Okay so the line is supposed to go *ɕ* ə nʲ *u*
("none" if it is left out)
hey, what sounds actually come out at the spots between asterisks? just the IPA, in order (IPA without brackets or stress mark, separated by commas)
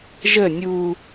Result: ʒ, u